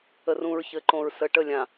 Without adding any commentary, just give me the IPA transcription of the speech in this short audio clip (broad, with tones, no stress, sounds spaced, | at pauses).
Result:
ə˨ r ũ˨ ɹ ç ɘ˨˦ ǃ õ˨ ɹ s ə˨ ʈ ə˦˨ lʲ ã˨